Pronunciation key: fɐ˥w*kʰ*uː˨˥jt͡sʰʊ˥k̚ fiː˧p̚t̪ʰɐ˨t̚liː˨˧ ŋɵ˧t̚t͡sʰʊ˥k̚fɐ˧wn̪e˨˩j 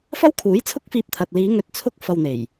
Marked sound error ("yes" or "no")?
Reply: no